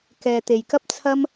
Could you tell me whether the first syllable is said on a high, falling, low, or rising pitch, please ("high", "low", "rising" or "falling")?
low